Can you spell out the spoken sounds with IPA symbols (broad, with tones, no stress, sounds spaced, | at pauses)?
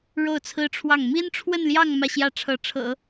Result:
ɻ o˥˩ ʊ̯ t͡sʰ ɹ̩˥ ʈ͡ʂʰ w ɑ˥˩ ŋ m i˥ n ʈ͡ʂʰ w ə˥˧ n l j ɑ˥˧ ŋ m ä˥˩ ɕ j ä˥ ʈ͡ʂʰ ɤ˧˥ ʈ͡ʂʰ ɤ̰˨˩˦